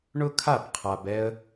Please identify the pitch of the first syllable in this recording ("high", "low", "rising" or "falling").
high